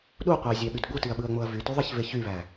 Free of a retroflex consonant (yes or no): yes